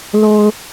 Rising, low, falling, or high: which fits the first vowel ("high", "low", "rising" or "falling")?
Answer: low